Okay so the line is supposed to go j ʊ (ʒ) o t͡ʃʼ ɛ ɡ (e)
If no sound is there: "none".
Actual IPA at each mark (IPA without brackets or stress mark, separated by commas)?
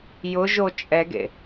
ʒ, ḛ